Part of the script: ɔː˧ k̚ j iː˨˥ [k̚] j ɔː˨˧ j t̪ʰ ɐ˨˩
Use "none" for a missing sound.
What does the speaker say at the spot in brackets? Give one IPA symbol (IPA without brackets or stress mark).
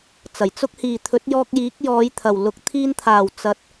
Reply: k̚